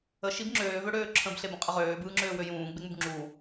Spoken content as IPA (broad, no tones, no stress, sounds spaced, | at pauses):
ə ʃ i b ŋ͡ǁ øː v ø ɽ øː ǁʰ ə̃ b ɬ e b ə̃ qʼ ə ʁ øː b ɯː ŋ͡ǁ øː w ø j ũː ɡ͡b e ŋ͡m u b ŋ͡ǁ u